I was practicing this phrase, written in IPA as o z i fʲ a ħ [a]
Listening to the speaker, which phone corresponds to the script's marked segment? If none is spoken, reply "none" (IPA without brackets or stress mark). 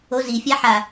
a